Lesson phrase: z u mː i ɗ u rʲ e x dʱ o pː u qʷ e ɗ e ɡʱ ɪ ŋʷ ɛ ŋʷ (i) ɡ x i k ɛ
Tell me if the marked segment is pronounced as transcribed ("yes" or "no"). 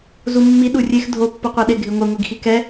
yes